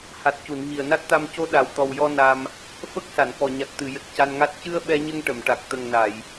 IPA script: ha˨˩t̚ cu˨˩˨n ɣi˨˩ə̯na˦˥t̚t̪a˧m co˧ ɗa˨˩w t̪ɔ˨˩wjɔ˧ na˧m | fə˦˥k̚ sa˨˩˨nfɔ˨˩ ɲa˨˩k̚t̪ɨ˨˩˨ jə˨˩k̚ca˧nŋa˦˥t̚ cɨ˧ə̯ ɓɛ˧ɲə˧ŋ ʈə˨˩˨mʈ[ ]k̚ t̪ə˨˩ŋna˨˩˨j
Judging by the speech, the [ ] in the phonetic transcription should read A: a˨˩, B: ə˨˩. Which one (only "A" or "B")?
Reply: A